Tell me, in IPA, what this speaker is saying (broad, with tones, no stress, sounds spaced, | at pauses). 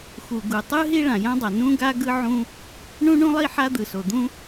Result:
x u˩ ɡ u˩ tˤ ɯ˥ ɦ i˥ ɭ ã˩ j ã˥ dˤ a˩ n ũ˥ ɡ a˥ ɡ ɯ˥ ʕ ũ˥ | ɳ ũ˥ ɳ ũ˥ lˠ i˥ ħ a˥ d̪ ɯ˩ s o˩ d̪ ũ˥